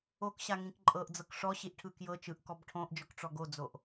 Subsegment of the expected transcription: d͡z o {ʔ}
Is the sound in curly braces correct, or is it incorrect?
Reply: correct